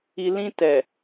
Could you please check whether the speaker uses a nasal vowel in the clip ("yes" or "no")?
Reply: yes